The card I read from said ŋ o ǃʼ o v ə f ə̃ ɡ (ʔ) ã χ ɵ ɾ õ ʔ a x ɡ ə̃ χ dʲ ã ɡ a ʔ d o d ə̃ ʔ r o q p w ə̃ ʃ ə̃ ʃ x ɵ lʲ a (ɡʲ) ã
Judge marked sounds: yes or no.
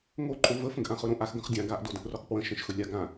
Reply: yes, no

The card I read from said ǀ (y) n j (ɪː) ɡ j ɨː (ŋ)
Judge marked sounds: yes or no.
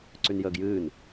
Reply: yes, no, no

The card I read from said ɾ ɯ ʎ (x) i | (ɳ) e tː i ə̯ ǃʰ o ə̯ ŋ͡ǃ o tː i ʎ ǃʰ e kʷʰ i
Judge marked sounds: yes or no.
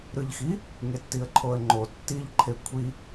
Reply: yes, no

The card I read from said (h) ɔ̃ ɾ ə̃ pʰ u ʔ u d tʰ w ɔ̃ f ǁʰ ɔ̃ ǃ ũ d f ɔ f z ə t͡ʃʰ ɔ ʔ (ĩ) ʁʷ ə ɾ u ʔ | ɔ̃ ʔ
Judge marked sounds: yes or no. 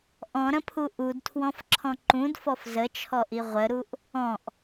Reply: no, no

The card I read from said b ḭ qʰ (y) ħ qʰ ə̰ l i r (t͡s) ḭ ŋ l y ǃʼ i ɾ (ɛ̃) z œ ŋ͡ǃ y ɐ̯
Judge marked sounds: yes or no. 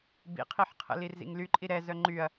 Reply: no, no, no

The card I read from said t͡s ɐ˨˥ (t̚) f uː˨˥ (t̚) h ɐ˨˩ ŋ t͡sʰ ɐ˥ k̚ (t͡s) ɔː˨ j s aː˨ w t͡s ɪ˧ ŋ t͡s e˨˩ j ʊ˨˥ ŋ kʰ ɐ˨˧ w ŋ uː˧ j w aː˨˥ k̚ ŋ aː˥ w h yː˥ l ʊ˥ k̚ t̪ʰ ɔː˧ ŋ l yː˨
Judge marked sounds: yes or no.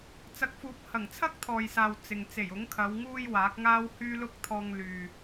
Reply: no, no, no

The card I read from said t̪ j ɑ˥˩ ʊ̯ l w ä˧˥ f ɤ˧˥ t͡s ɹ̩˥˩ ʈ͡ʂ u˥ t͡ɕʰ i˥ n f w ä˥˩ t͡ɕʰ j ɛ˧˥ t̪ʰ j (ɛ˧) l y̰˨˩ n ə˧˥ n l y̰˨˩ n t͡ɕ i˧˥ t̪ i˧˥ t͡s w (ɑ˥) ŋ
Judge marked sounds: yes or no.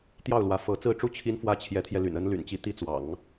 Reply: yes, no

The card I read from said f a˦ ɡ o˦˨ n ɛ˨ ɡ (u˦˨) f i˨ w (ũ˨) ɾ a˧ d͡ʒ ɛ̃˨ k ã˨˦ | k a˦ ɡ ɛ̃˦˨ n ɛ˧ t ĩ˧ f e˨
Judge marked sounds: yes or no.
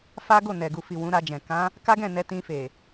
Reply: no, no

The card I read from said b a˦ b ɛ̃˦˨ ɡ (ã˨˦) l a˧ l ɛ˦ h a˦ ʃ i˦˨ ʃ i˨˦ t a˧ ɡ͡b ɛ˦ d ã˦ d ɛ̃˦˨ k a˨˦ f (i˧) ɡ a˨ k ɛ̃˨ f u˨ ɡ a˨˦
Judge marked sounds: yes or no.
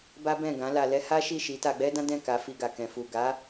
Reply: yes, yes

